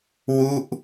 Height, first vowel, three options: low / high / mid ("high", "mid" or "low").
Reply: high